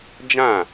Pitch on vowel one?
falling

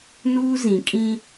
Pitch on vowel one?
high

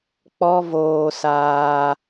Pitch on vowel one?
high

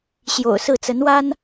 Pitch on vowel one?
low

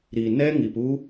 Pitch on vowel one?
low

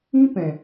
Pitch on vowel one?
high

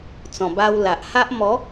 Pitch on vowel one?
low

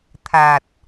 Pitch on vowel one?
low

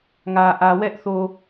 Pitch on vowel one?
low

